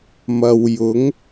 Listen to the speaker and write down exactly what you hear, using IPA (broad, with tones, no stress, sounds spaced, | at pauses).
m ɐ˨ w j ʊ˨˥ ŋ